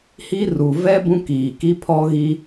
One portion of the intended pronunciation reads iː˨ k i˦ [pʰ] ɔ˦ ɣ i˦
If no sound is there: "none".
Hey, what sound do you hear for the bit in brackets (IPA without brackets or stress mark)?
pʰ